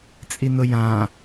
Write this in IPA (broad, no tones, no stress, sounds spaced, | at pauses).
t͡sʼ i n ʊ j ã